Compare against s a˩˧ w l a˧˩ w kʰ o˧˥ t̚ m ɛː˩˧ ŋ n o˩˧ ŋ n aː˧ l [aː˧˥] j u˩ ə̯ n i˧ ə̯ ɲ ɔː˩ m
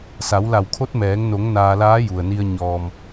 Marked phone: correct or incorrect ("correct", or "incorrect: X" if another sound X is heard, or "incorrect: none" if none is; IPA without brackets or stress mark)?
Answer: correct